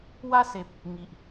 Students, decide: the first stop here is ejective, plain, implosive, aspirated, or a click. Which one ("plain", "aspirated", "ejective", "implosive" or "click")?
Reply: plain